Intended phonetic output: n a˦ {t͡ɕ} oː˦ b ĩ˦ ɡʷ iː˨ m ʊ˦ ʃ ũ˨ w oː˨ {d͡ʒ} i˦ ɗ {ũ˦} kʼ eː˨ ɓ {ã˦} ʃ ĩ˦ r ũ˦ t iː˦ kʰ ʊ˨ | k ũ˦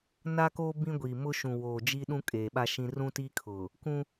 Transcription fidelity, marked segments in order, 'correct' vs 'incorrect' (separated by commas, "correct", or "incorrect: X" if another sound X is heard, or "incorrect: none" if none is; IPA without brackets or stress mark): incorrect: k, correct, correct, incorrect: a˦